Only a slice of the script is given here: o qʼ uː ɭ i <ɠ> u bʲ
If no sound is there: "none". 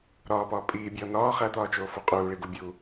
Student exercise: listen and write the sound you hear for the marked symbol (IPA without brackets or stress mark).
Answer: ɡ